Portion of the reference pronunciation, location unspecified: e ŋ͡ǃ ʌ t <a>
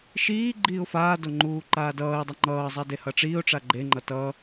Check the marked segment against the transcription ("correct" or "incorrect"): incorrect